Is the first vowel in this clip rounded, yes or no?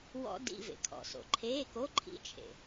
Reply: yes